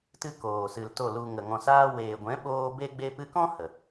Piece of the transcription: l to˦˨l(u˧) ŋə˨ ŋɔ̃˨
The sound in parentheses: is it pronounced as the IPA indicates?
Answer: yes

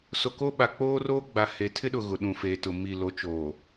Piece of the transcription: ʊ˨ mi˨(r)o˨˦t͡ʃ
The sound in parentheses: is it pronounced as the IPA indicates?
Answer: no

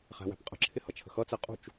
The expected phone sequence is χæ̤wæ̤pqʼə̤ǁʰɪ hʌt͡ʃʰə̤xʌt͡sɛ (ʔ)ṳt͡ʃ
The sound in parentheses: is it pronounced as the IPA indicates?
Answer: no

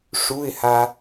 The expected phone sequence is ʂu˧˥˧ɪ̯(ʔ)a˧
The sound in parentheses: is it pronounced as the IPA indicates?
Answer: no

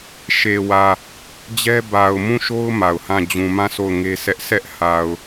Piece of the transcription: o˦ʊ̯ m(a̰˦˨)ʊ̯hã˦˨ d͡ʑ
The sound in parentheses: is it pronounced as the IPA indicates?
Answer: no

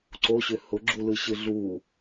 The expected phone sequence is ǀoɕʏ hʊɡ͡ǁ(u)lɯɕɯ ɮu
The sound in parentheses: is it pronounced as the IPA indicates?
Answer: yes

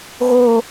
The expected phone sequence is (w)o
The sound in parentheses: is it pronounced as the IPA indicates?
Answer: no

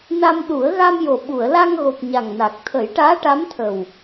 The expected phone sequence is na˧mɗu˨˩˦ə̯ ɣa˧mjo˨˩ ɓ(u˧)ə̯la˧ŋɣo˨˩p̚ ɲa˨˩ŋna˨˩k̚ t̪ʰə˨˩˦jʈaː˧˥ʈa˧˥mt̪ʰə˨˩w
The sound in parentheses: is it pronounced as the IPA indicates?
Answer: no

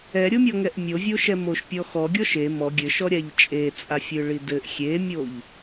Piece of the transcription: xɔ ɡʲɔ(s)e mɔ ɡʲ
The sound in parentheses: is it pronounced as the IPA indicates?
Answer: no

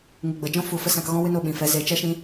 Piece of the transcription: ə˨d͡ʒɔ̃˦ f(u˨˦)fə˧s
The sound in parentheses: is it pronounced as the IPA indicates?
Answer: yes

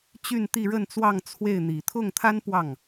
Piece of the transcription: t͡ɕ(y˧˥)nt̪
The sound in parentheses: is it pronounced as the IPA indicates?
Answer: no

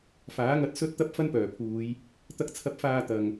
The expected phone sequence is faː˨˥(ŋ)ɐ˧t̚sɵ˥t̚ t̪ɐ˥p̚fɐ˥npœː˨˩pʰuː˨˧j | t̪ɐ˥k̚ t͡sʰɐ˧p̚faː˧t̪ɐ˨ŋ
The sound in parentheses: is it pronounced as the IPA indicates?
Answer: yes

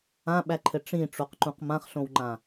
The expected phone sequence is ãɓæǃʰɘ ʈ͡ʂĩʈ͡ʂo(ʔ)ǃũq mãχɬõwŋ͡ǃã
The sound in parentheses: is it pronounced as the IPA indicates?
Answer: no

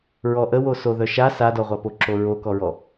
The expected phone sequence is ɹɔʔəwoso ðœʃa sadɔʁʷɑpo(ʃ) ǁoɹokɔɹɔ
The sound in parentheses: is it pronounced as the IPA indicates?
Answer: no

